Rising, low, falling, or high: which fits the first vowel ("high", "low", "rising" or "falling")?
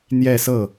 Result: falling